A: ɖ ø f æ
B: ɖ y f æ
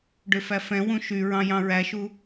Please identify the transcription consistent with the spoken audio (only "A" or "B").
A